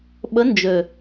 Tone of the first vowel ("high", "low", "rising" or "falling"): rising